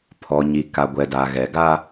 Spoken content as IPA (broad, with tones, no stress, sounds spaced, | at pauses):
pʰ ɔ˨ ɲ i˨ k a˨ ɡʷ ɛ˨ d a˨ ɣ ɛ˨ ɡ a˦